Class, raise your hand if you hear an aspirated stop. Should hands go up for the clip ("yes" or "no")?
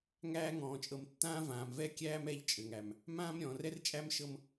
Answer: no